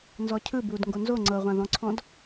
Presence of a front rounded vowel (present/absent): absent